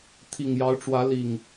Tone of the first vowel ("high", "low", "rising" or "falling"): low